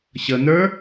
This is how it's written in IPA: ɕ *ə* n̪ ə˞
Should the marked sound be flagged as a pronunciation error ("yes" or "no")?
no